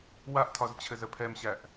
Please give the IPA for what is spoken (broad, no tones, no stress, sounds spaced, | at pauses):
w a ʔ tʰ ɒ z t͡ɕʰ ɘ z ə pʰ ɛ m ɕ æ ʔ